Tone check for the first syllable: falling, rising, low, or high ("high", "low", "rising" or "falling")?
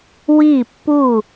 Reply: falling